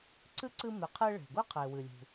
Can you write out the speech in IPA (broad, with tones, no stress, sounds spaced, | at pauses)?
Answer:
ǀ ɨ˥ ǀ ɨ˧ m e˩ qʰ e˧ ɭ e̤˩ ɡʷ e˥ qʰ e˩ w ɨ˩ lʲ ṳ˩